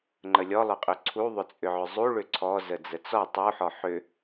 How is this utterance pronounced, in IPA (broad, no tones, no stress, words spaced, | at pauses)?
ŋ͡ǃəlʲɔlˠʏqʼʏ ǀʰuðˤʏt͡sʼʏʕʏ zˤuɭʏ ǀʰɔ zəd͡zət͡sɔ tˤuħɔ ħʏ